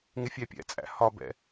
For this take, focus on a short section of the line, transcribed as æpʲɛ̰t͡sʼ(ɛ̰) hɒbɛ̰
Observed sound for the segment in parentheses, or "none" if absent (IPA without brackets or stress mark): æ̰